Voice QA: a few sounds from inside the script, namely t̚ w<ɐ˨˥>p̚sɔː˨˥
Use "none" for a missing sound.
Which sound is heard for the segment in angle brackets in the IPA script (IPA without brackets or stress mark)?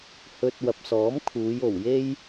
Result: ɐ˨